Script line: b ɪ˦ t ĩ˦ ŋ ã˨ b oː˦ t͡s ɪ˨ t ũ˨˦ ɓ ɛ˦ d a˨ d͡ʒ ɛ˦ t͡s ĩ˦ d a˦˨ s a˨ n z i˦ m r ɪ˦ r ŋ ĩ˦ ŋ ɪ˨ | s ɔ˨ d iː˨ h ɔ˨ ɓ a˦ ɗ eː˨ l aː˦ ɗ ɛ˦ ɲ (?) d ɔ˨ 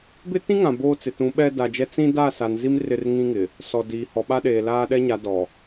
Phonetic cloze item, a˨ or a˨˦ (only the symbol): a˨˦